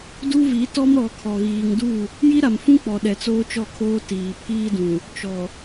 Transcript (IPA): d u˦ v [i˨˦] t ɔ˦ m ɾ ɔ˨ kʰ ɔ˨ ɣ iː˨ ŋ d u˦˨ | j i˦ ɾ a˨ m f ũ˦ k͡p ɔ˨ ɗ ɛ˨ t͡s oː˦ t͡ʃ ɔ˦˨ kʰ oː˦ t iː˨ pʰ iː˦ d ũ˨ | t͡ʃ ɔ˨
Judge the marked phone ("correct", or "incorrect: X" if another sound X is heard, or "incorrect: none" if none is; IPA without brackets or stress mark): correct